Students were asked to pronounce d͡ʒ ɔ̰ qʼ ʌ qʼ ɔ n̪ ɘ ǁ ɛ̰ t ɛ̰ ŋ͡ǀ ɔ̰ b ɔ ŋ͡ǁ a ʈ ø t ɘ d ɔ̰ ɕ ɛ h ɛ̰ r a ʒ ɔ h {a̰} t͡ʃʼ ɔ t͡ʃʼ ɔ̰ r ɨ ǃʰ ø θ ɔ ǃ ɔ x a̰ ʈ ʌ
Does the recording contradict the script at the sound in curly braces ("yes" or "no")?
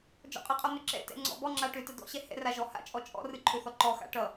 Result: no